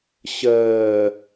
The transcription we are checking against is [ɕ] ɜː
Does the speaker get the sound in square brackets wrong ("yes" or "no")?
no